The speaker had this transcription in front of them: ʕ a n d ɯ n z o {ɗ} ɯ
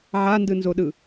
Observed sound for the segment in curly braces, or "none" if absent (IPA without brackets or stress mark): ɗ